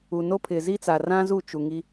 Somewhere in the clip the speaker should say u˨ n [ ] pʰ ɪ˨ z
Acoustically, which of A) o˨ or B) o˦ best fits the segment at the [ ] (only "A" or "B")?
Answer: B